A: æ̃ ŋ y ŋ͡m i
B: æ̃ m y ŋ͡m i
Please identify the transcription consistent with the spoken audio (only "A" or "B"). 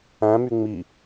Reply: B